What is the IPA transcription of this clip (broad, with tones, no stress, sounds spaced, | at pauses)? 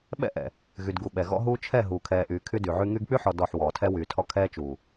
ɓ ɛ̰˦ ʔ ɛ̰˨ | ɣ y˨ d ɡ u˨ ɓ ɛ˨ ɣ ɔ̰˦ ɦ uː˦ t͡ʃʰ ɛ˦˨ ɦ uː˨ kʰ ɛː˨ ʔ yː˨ kʰ y˦ d y˨ ʕ y˦ ŋ y˦ ɡ k͡p y˦ ħ ɔ˨ d ɔ˦˨ ħ w ɔː˨ tʰ ɛ˦ w yː˨ tʰ ɔ˦ kʰ ɛː˦ t͡ʃ uː˨